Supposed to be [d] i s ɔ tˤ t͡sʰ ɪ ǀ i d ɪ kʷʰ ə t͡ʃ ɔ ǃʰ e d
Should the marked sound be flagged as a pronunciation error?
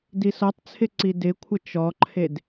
no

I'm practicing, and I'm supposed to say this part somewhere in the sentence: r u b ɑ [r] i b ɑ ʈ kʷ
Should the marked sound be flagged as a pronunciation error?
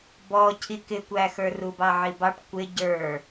yes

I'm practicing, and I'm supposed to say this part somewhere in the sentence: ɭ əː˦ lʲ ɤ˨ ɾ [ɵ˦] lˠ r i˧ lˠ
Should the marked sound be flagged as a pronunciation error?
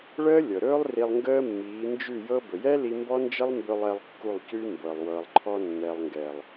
yes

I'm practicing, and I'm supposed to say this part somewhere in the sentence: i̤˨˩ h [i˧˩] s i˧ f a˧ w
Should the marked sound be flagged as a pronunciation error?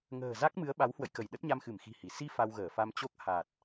no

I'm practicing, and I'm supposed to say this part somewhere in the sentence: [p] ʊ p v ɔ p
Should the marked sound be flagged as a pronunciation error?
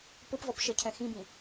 no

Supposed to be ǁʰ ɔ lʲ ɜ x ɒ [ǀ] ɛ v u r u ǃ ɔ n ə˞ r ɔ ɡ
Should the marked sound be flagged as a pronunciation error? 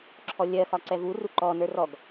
no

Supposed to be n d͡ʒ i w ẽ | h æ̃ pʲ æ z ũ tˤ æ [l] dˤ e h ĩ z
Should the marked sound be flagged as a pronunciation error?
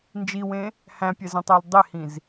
no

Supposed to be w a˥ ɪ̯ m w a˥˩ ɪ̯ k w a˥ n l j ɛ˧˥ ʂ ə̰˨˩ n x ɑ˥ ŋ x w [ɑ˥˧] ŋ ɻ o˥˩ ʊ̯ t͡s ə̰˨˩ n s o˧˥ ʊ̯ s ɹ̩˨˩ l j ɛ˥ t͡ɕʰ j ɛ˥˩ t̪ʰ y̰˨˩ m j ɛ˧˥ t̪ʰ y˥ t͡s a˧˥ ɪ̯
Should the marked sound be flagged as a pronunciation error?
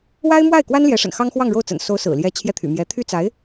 no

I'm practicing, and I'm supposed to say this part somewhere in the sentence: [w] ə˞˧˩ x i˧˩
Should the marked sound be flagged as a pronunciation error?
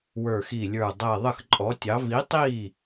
no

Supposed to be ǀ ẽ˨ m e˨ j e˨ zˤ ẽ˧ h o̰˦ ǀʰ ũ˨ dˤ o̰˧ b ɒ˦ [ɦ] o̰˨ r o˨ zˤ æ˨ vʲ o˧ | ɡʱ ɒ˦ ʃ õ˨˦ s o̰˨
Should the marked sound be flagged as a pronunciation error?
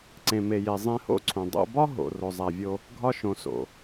no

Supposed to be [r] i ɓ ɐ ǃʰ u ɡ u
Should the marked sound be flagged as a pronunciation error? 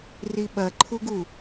no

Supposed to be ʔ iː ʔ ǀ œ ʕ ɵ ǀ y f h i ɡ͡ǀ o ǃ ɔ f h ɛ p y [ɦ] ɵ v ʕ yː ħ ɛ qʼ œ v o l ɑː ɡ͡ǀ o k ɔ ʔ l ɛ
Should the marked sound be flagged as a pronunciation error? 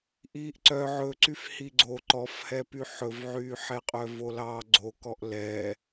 yes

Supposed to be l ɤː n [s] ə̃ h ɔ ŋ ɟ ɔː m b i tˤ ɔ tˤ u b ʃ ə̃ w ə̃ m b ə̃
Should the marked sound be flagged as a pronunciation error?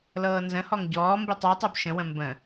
yes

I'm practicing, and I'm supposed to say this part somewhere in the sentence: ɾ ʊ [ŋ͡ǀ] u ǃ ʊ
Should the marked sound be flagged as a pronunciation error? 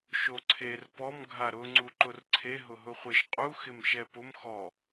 no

